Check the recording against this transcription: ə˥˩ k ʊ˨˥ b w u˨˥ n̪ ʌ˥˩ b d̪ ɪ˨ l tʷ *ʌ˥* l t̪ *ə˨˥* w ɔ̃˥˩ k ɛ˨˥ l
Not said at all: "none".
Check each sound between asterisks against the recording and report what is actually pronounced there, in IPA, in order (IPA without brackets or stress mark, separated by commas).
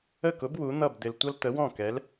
ʌ˥, ə˨˥